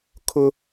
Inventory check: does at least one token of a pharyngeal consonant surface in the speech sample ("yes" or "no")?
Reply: no